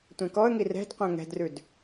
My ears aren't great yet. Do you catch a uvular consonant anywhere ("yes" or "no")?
yes